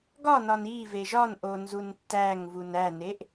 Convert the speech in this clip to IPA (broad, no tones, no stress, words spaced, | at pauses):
ɡɒnɒn i veʒɒnʔo nzuntːæŋvun æneʔ